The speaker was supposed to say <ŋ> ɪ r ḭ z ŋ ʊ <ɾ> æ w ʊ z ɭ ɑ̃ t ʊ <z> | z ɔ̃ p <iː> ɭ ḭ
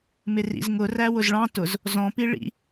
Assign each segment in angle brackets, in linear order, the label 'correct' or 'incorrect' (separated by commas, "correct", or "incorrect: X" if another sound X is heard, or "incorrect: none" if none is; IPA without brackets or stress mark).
incorrect: m, incorrect: r, correct, incorrect: i